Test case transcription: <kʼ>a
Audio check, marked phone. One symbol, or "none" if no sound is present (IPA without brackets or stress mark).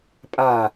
pʼ